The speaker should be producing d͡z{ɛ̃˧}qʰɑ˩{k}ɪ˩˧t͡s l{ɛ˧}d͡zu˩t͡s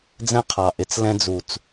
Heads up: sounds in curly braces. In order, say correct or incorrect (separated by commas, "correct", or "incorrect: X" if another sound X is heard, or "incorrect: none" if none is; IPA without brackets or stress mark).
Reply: correct, incorrect: ʔ, incorrect: ɛ̃˧